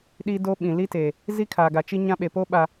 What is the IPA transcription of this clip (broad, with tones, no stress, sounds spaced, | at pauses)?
ɗ i˦ d o˦ ɓ ĩ˨ l i˦ t e˨ | z i˦ kʰ aː˨ ɡ a˨ t͡ʃ i˦ ɲ ã˦ ɓ e˨ p o˦ ɓ a˨